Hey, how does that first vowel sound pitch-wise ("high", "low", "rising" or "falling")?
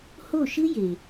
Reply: falling